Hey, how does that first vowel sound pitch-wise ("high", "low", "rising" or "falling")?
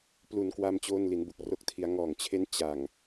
low